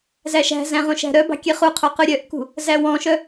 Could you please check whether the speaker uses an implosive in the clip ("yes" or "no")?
no